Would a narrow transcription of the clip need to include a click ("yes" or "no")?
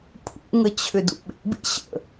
no